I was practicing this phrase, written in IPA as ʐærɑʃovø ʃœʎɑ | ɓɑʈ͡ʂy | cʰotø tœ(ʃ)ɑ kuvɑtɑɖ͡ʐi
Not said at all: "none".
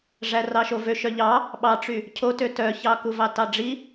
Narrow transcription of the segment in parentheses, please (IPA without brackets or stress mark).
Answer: ç